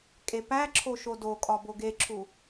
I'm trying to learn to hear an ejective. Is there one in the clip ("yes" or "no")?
yes